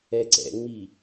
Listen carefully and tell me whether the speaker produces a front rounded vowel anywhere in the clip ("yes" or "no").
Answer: no